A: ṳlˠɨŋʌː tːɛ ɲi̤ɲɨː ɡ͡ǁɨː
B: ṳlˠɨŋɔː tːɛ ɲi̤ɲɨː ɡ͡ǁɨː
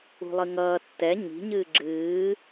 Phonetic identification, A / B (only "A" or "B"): A